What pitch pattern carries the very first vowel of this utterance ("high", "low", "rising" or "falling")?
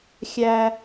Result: low